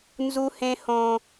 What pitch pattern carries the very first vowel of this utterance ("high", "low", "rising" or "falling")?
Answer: high